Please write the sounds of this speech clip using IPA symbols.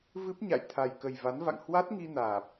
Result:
v ɨ˦˥ p̚ ɲ a̰˧˨ j t̪ʰ a˨˩ j k ə˨˩ j v a˨˦ n v a̰˧˨ ŋ h w a˦˥ t̚ ŋ i˧ n aː˨˩ p̚

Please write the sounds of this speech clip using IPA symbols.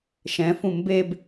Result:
ʃ ɛ̃ f ũ m b e b

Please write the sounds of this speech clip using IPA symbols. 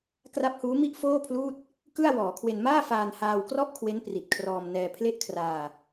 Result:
k r a˦˥ p̚ h uː˦˥ m i˥˩ ʔ f oː˥˩ pʰ l uː˥˩ t̚ | k ɯ˥˩ a̯ w ɔː˩˦ kʰ w e˧ n m aː˥˩ f aː˧ n h aː˧ w k r ɔ˥˩ ʔ kʰ w e˦˥ n p r i˨˩ t̚ kʰ r ɔː˧ m n ɛː˧ pʰ l e˥˩ ʔ kʰ r aː˧

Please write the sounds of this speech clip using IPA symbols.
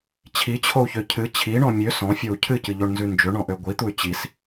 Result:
t͡ɕʰ i t͡ɕʰ o u̯ ç ø cʰ ɨ t͡ɕʰ i ɳ ɔ̃ mʲ ø s ɔ̃ fʲ o u̯ cʰ ɨ c ɨ ʎ o ɳ n z ʉ n d͡ʒ ø ɳ ɔ̃ ʔ ø ɡʷ i t̪ u y̯ t͡ɕ i s

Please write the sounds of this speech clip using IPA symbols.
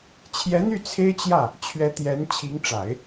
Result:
t͡ɕʰ j ɛ˧˥ n̪ y˥˩ t͡sʰ e˥ ɪ̯ t͡ɕ j ä˥˩ | t͡ɕʰ ɥ ɛ˧˥ t̪ j ɛ˧˥ n t͡ɕʰ i˧˥ ŋ ʈ͡ʂ a˨˩˦ ɪ̯

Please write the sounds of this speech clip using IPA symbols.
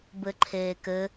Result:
b ɘ ǃʰ eː k ɘ

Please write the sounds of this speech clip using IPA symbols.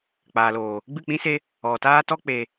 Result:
k͡p aː˨ l oː˨ | ɡ͡b ɨ˦˨ k͡p ĩ˦ s e˦ | ɔ˨ t aː˦ t ɔ˦ k͡p e˧

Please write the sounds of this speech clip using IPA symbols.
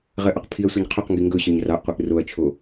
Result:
ʁ ɜ ʔ ɒ q pʰ i ɐ̯ sʷ ɜ ɲ qʰ ɵ q ŋ ɡ i ŋ ɡ ɵ ɕ ɵ ɲ r ɑ ʔ qʷ e ʔ r o ɐ̯ t͡ʃʰ o

